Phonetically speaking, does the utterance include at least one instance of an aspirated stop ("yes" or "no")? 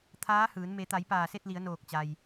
yes